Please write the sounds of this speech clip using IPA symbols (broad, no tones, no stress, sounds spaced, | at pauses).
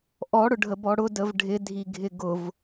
ʔ ɔ ɽ ʊ ɖʱ ə b ɔ ɽ ʊ d ə v ɖʱ ɪ dʱ i ɡʱ ɪ ɡ ʊ v